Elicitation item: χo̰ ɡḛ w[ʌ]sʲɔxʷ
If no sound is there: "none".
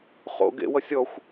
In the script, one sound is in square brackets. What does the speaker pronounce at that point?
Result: ʌ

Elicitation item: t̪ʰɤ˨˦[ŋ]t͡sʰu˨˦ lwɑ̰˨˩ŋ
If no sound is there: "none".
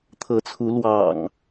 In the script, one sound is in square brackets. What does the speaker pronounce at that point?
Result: none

